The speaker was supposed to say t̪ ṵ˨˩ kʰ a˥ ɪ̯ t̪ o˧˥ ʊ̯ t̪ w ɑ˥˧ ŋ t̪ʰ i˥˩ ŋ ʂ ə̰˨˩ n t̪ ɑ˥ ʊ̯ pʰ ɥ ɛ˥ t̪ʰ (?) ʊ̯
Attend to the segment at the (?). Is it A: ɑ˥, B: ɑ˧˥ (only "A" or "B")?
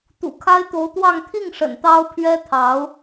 B